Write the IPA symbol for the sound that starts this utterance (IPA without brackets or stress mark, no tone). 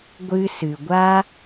ɡʷ